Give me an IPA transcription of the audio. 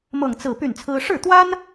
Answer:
m ɤ˥˧ ŋ t͡s ɹ̩˥˧ p y˥˩ n t͡sʰ ɹ̩˥ ʂ ɻ̩˥˩ t̪ w a˥ n

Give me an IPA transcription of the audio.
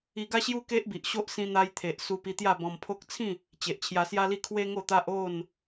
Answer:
i˧ ɡ a˦ ɕ j u˦ k e˦ ʔ b i˨ ʔ ɕ o˦ ʔ s ĩ˧ n̪ a˧ j t̪ʰ e˨ ʔ s u˧ p i˧ t̪ j a˥˧ b ɔ̃˧ m pʰ o˦ k̚ t͡sʰ ĩ˥˧ | t͡ɕ e˨ ʔ t͡ɕʰ j a˧ s j a˦ l i˥˧ kʰ w e˦ ŋ o˥˧ t̪ a˦ ʔ o˥˧ n

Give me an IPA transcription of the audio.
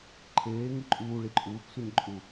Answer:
ǃʰ eː ŋ ɯ ǃʼ uː ɭ i ǃʼ uː k sʷ ɛ ɲ ǃʼ u

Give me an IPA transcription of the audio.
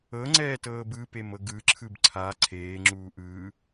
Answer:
ɤ ŋ͡ǀ ɛː t ɤː b ɯ p e m ɤ ɡ ɯ ǁʰ ɯ b ǀʰ a ǀʰ eː ŋ͡ǁ uː ʔ ɯː

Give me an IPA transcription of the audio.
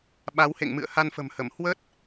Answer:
ɓ a˨˦ w h ḛ˧˨ ŋ m ɨ̰˧˨ ə̯ h a˧ n f ə̤˨˩ m h ə˧˩ m h w ə˦˥ t̚

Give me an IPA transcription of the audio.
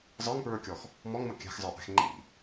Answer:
zˤ ə˞ ŋ p ɹ ə˞ kʲ ɔ x | m ɔ ŋ m ʌ kʲ æ̤ x zˤ ə˞ ʔ æ̤ x ŋ͡ǃ ḭ

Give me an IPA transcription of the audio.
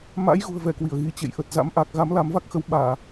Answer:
m a̰˧˥ j ɣ ṳ˨˩ ə̯ v ɛ˧˩ k w i˧˩ ə̯ ɣ i˨˦ t͡ɕ ḛ˧˨ j ʔ ə˨˩ t̚ z a̰˧˥ m ʔ a˨˩ k̚ ɣ a˨˦ m l a˨˦ m v a˦˥ k̚ x ə˨˦ w ɓ aː˧˩˨

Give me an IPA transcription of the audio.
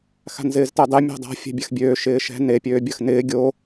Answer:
x a̤ n z ɪː z t ɛ dˤ e mʲ a̤ dˤ a̤ fʲ ɛ̤ bʲ a x bʲ øː ʃ ɪː ʃ ɛ̤ n e pʲ øː bʲ ɐ x n ɪː ɡʲ o

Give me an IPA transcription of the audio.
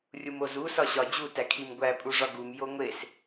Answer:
rʲ u m o z u s ɒ ɕ ɒ d͡ʑ u t æ kʰ i m ɡʷ æ pʼ u ʐ ɒ ɡ u m j o ŋʷ e s

